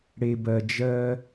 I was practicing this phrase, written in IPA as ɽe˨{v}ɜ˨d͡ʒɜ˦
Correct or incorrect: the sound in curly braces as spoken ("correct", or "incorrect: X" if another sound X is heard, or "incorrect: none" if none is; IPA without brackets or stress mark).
incorrect: b